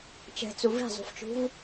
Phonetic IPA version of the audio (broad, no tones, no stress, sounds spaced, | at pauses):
t͡ʃ ɛ̤ t͡s u v i̤ zˤ ṳ f t͡ʃ ṳ v